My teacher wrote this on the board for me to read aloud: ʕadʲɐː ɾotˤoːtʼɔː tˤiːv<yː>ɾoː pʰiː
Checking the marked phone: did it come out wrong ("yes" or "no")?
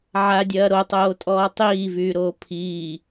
no